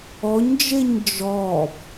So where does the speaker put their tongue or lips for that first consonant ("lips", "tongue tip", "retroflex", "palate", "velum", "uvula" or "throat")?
palate